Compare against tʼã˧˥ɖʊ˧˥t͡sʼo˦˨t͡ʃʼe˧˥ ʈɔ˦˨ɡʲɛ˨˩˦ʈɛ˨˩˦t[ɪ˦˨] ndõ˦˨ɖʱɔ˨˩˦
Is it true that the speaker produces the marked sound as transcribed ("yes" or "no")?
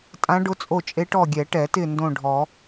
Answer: yes